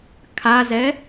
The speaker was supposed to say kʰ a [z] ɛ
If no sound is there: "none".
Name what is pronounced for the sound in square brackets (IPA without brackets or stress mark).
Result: z